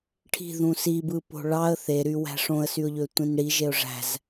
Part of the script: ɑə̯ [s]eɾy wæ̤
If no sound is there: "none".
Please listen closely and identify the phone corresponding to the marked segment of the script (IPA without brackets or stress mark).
θ